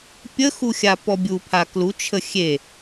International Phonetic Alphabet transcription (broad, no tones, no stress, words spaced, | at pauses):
pʲəxu xʲapɔbʲupʰa klut͡ʃʰə xʲe